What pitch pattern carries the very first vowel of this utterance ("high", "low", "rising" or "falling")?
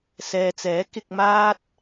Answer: low